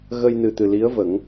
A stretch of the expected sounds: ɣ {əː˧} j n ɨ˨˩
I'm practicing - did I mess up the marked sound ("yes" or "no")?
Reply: yes